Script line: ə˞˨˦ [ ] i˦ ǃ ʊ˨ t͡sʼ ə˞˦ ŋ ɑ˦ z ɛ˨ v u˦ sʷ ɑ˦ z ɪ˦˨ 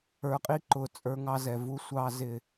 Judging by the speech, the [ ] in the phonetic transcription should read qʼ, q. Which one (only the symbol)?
qʼ